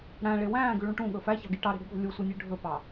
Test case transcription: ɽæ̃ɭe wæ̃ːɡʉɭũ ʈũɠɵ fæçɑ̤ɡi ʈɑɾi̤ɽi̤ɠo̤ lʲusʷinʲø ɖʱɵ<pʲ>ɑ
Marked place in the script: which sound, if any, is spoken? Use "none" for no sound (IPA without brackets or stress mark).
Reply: p